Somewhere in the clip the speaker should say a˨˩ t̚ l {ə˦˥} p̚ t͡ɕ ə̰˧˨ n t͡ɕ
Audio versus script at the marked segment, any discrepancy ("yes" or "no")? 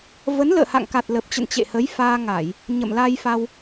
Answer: yes